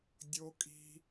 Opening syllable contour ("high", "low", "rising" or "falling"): low